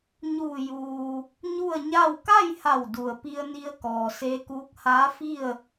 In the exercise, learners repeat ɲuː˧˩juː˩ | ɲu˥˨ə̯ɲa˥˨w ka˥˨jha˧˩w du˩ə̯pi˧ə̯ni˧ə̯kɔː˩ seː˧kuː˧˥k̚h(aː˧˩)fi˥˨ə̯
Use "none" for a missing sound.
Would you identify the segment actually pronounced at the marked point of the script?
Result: aː˧˥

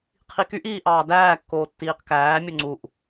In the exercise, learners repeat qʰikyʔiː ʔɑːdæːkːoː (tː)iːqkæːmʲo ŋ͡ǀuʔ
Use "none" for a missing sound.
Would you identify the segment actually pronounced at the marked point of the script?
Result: tː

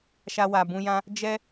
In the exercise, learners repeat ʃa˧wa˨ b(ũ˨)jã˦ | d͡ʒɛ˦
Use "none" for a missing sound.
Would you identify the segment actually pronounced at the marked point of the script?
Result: ũ˧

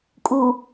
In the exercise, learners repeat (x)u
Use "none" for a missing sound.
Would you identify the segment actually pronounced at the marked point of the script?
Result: kʼ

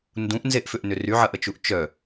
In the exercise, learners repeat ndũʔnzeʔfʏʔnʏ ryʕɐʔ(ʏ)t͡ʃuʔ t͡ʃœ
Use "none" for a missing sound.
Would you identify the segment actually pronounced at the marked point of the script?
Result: ə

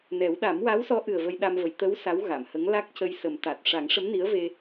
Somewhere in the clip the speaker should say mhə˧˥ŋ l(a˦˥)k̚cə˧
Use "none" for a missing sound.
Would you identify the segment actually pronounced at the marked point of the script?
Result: a˦˥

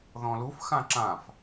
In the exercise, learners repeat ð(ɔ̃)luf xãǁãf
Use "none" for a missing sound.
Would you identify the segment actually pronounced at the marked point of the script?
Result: ɔ̃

